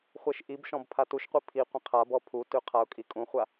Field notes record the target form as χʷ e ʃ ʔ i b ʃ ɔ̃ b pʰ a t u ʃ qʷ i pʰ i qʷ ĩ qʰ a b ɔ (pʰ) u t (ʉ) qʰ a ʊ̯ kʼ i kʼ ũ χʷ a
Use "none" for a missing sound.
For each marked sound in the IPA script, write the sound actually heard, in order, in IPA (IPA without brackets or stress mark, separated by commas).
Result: pʰ, ʉ